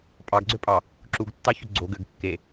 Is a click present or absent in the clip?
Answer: present